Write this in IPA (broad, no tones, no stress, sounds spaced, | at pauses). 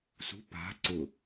s ṳ p a̤ ǀ ʊ